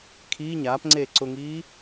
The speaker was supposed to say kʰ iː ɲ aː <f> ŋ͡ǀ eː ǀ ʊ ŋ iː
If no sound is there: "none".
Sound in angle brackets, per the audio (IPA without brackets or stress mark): p